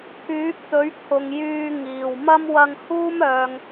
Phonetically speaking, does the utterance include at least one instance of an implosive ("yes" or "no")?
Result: no